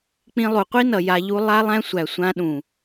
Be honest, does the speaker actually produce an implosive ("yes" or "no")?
yes